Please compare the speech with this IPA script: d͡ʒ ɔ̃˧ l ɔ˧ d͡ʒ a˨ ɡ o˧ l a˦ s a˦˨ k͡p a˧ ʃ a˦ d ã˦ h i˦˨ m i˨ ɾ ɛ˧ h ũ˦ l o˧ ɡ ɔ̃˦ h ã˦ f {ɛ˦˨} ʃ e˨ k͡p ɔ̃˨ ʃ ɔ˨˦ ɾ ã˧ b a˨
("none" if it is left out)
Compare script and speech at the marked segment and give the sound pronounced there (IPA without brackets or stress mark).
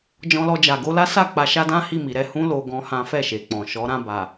ɛ˦˨